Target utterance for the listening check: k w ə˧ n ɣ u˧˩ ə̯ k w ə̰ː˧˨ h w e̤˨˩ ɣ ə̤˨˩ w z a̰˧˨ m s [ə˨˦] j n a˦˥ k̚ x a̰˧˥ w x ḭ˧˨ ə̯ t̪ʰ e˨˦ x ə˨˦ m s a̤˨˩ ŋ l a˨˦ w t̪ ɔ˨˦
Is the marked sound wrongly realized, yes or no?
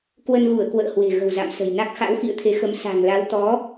yes